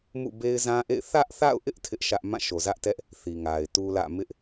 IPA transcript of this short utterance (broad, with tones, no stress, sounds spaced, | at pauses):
m ṵ˦˨ b e˦ ɪ̯ z ã˦ ʔ ḛ˦˨ ɪ̯ θ ä˦ ʔ θ a̰˦˨ ʊ̯ ʔ ɪ˦ ʔ tʰ ɪ˦ ʔ ʃ ä˦ ʔ m ã˦˨ ʃ o˨ z ä˦ ʔ t ɛ˦ ʔ | θ i˨ ŋ a˨ ɪ̯ t u˦ l ä̰˦˨ m ɪ˦ ʔ